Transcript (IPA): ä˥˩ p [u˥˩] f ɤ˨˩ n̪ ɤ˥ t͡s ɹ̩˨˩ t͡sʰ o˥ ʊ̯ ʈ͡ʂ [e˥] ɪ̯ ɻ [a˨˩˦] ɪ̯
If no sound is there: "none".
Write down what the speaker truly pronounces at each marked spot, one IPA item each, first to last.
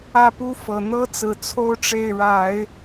u˥, e˥˩, a˨˩˦

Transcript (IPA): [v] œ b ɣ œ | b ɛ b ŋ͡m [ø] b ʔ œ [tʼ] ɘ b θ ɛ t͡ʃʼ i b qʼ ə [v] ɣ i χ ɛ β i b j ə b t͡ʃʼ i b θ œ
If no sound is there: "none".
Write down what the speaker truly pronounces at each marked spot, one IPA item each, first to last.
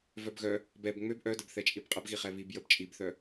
v, ø, d, b

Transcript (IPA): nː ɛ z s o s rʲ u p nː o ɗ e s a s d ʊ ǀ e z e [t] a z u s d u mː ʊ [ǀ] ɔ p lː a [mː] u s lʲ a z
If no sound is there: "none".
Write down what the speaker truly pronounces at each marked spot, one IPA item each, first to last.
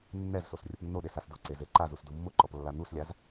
ǃ, ǃ, n̪

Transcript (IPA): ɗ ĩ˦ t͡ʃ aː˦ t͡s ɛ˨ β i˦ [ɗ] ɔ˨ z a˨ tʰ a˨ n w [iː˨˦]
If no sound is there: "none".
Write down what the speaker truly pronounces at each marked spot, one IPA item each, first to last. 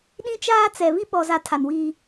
ɓ, iː˦

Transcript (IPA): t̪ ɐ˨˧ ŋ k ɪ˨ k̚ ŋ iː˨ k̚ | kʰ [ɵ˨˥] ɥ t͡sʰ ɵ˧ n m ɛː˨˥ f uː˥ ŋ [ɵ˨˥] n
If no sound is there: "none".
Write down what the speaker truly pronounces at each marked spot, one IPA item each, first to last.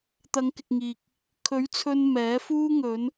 ɵ˨˥, ɵ˨˧

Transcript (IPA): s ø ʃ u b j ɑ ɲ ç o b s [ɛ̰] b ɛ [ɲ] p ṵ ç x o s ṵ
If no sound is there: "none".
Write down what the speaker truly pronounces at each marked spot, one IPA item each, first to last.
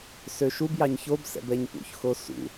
ɛ̰, ɲ

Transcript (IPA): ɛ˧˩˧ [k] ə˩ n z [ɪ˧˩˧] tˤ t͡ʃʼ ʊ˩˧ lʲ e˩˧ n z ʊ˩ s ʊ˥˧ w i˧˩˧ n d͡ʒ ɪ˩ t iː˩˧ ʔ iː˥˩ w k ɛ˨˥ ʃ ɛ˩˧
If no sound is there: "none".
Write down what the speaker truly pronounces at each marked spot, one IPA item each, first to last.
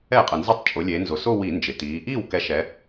qʼ, ɪ˧˩˧

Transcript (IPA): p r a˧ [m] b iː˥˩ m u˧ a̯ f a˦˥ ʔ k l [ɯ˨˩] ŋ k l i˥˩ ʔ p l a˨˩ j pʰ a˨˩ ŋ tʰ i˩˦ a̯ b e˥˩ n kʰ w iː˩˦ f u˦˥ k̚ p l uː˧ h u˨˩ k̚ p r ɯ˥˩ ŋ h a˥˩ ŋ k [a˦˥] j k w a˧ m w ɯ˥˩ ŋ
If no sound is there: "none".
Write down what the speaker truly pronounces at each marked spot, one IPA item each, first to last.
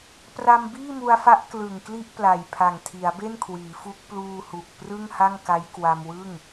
m, ɯ˨˩, a˦˥

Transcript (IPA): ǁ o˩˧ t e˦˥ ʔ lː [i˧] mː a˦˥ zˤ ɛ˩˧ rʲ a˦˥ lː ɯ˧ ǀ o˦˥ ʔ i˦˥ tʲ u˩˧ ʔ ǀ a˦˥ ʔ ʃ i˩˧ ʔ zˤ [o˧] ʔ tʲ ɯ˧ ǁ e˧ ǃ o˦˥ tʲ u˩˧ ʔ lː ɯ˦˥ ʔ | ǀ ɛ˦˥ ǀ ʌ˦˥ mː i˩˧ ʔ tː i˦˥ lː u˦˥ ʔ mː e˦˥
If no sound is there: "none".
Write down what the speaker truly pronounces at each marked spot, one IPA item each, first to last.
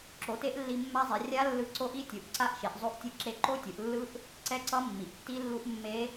i˧, o˧

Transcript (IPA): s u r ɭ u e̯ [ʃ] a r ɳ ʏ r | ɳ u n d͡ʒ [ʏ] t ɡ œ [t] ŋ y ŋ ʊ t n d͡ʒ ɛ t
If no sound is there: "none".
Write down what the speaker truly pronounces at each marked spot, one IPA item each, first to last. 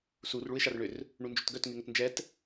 ʃ, ʏ, t

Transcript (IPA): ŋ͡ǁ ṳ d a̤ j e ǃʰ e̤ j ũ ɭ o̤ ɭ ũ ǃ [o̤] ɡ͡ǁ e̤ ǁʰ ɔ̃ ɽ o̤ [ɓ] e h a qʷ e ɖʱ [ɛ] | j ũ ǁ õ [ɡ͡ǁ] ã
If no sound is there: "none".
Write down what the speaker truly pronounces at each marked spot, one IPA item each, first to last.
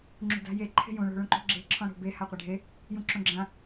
o̤, b, e, ɡ͡ǁ

